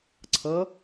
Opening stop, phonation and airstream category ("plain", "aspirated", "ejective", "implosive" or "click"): click